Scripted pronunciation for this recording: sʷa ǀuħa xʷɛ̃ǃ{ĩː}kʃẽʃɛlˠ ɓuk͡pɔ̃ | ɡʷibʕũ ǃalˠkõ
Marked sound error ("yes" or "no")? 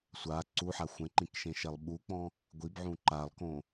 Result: yes